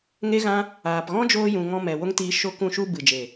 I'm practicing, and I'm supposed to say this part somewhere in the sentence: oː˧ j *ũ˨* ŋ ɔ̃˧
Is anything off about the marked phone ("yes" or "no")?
no